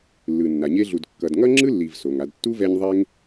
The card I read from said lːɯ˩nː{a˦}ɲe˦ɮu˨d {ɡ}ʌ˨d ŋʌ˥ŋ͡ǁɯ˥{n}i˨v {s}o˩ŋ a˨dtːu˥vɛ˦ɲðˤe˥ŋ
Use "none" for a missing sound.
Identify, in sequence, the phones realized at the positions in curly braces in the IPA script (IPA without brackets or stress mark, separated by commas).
a˩, kː, lː, s